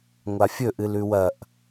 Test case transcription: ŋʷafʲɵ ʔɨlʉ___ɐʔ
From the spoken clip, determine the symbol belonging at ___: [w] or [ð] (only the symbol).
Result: w